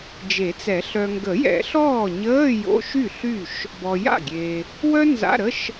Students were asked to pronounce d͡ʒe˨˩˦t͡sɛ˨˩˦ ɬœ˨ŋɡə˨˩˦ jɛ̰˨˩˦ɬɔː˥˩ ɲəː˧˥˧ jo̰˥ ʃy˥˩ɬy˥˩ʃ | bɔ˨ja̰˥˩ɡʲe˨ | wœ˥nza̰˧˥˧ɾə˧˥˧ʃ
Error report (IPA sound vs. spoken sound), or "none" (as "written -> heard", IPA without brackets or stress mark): o̰˥ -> o̰˧˥˧